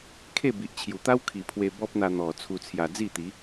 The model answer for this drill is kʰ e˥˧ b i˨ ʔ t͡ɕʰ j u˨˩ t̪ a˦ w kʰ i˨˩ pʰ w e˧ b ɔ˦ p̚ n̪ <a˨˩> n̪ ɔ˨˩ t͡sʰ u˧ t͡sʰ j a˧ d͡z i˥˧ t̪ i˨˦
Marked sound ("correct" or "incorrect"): incorrect